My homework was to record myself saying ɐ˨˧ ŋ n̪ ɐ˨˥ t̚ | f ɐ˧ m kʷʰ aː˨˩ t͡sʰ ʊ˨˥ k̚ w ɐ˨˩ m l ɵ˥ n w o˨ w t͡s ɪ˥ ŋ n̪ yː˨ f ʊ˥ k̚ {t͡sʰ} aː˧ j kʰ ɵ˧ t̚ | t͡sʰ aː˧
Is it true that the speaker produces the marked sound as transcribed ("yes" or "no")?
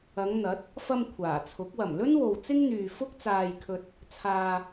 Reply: no